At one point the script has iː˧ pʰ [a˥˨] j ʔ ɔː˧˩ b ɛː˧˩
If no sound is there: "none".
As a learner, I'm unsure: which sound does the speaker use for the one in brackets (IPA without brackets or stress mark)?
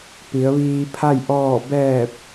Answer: a˥˨